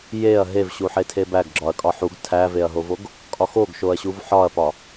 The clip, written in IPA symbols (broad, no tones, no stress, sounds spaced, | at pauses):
j e ɐ̯ ɦ e v ɕ u ħ e tʰ e b æ ɡ ɡ͡ǁ ɒ ɐ̯ kʼ ɒ ħ u ɡ tʰ æ v e ɐ̯ ɦ o v o ɡ | kʼ ɒ x o ɡ ʃ o ɐ̯ ɕ u v ħ ɒ ɐ̯ p ɒ